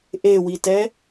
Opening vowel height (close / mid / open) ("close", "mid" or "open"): mid